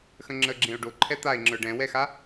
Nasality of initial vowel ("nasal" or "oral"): nasal